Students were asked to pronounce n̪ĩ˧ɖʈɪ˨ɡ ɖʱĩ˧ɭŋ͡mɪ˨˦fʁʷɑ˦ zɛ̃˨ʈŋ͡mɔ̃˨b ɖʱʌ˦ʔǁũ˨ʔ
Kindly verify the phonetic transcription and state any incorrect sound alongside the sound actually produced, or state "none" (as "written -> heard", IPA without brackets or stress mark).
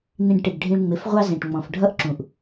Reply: b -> f